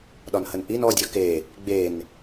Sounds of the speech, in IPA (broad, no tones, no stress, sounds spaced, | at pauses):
ɗ ɒ n h ə n ʔ i n ɔ dʲ ɒ k e | ɡ͡b e n